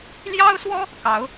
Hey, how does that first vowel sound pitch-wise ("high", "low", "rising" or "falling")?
high